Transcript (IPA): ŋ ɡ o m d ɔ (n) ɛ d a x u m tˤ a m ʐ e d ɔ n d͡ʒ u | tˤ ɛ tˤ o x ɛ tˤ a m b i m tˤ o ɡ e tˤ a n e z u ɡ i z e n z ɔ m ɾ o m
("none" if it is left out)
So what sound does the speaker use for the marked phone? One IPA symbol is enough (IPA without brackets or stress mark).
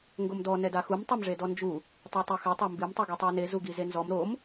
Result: n